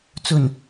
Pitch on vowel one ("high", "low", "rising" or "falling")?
low